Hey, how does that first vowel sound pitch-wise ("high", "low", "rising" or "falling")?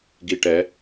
low